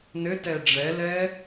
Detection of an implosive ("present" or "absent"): absent